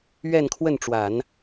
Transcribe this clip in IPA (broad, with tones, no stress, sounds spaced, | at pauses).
ɥ ɛ˥˧ n kʰ w ə˥˩ n ʈ͡ʂ w a˨˩˦ n